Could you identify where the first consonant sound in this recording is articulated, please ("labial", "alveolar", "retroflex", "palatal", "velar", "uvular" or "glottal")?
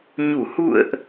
palatal